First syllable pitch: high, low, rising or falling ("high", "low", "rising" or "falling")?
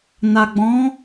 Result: low